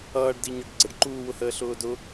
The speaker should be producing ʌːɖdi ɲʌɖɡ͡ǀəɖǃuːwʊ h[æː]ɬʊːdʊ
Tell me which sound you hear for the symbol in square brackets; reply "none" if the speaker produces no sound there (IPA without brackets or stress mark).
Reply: əː